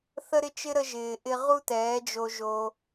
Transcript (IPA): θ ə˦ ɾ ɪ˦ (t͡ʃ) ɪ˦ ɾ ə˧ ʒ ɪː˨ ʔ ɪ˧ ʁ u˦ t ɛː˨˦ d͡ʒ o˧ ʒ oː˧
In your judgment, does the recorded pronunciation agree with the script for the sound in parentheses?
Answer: yes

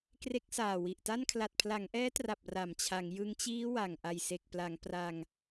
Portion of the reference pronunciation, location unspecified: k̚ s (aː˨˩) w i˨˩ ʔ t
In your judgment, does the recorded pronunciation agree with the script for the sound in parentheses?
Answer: yes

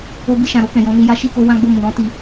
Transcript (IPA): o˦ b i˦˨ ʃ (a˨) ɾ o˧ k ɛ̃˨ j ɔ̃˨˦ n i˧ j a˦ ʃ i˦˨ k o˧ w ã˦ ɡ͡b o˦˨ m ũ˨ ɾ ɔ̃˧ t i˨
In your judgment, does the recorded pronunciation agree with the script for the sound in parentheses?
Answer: no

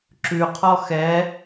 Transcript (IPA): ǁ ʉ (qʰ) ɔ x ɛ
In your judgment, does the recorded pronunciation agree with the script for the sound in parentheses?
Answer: yes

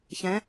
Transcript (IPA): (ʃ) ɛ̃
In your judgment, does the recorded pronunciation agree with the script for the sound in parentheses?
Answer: no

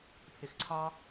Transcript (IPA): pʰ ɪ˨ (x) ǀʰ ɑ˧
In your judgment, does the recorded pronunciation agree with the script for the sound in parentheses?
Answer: yes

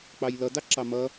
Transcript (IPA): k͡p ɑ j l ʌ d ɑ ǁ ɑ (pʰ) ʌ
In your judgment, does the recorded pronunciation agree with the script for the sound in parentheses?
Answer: no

